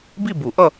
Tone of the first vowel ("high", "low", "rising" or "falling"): falling